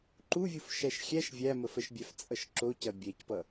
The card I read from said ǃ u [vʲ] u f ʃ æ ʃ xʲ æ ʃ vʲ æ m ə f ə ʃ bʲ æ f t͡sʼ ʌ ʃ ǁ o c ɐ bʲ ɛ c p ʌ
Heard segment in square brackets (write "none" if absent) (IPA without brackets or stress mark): vʲ